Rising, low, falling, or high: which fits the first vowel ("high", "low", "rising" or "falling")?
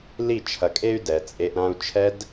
falling